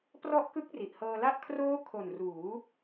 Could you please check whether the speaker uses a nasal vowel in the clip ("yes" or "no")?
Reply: no